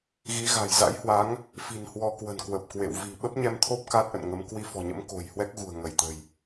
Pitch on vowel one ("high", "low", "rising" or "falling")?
rising